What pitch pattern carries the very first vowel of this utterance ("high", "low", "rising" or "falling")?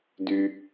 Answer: high